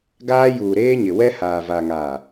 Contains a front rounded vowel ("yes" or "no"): no